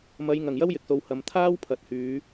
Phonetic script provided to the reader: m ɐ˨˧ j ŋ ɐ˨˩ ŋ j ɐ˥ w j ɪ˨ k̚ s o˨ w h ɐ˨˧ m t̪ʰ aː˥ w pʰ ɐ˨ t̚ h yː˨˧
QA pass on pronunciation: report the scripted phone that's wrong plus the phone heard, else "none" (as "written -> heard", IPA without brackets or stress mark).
none